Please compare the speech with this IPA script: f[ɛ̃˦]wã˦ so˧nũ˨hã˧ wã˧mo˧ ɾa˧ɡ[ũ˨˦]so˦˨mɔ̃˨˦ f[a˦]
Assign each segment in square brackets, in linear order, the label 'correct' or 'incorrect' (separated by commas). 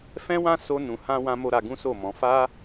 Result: correct, incorrect, correct